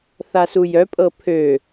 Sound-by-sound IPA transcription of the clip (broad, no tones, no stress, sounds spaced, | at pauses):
θ a s u j œ pʼ ɤ pʰ ø